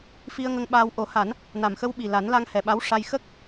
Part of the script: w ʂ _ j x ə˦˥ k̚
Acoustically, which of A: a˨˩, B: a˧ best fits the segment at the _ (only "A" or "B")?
B